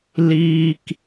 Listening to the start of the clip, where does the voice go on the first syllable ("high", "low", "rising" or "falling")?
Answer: high